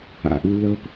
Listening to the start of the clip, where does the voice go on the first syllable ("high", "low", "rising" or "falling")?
low